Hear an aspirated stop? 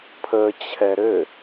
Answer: yes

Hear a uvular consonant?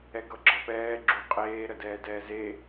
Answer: yes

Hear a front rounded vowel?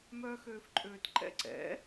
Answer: yes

